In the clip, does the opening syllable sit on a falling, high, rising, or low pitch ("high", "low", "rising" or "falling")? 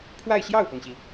falling